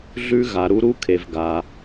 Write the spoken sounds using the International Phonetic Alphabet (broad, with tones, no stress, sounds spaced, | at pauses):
ɮ ʉ˦ ɣ a˨ ɾ u˦ ɾ u˦ kʰ e˨ v ɡ a˨